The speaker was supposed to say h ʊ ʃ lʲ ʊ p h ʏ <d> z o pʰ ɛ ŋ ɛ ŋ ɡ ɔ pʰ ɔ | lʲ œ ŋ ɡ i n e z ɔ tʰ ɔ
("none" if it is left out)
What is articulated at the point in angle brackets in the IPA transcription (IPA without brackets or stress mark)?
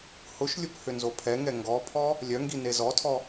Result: n